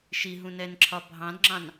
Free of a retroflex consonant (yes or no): yes